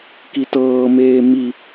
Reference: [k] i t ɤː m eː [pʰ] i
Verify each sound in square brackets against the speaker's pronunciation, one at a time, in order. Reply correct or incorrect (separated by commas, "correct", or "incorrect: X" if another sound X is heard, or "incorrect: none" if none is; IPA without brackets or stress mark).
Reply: correct, incorrect: m